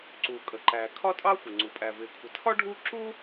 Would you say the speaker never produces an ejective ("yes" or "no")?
no